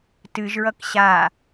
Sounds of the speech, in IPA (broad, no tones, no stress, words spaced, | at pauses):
tɨʒɹʌk ɕa